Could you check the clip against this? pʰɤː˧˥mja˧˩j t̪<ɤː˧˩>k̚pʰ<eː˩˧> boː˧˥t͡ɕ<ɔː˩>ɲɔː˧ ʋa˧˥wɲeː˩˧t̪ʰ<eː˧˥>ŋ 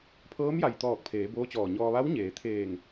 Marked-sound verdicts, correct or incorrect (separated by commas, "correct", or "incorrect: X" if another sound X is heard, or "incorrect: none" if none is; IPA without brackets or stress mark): incorrect: ɔː˧˩, correct, incorrect: ɔː˧˩, incorrect: eː˧˩